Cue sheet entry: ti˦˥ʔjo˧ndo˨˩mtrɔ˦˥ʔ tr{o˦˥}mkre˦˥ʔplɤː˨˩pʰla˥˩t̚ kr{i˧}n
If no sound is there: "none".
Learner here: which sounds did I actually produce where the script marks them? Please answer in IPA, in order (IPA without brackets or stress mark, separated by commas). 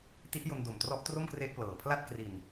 o˥˩, i˨˩